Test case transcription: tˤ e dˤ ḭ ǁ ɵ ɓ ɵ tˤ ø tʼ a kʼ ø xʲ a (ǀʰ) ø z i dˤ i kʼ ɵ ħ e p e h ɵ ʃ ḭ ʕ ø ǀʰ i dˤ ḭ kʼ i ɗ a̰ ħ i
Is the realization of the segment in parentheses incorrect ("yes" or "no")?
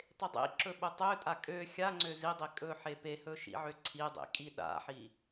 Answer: yes